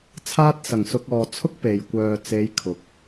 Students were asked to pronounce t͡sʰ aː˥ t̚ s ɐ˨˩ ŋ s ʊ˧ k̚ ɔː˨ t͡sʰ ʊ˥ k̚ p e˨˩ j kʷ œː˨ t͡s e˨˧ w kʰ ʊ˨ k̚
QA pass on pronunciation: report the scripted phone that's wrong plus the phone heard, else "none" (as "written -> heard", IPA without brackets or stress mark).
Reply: w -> j